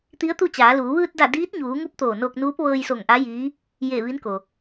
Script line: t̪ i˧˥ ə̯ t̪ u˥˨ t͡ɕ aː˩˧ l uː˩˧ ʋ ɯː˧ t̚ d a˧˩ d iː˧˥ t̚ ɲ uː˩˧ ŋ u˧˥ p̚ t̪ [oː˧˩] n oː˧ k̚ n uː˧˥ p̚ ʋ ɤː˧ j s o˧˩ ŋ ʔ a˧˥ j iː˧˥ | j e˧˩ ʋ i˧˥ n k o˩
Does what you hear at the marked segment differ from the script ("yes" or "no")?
no